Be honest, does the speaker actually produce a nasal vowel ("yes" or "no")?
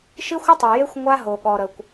no